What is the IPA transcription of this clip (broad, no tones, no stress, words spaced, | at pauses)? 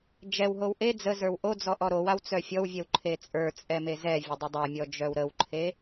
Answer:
d͡ʒɛwɦow ʔe d͡zəzə˞w ʔod͡zɔ ʔɔɾowaw t͡sœfʲɔwvʲɛw ǃʰet͡sʼə˞ t͡sʼɛmezɛvʲə dˤədˤamʲɔ d͡ʒœwɾəwǃʰe